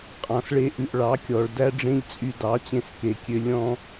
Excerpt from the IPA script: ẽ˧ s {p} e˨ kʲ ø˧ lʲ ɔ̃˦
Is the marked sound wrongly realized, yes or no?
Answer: yes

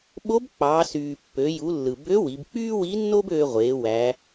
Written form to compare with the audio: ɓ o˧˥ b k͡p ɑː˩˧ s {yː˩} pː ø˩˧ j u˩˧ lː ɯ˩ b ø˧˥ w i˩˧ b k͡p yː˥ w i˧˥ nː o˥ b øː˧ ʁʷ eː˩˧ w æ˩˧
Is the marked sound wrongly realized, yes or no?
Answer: no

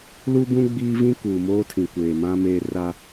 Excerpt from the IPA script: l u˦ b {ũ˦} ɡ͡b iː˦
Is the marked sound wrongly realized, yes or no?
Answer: no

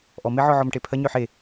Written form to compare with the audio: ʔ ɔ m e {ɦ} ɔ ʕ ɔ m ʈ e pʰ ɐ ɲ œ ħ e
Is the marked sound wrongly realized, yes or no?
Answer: yes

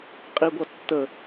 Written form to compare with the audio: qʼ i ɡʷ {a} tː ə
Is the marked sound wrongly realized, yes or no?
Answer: yes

